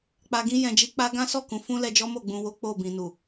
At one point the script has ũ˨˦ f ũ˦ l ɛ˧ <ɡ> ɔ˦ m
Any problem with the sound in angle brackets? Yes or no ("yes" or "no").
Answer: yes